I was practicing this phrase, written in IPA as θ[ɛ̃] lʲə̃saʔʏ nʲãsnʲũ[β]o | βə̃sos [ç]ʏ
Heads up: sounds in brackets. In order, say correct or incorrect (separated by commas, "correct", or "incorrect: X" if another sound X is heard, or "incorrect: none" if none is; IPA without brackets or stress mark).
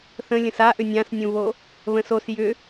incorrect: ə̃, correct, incorrect: j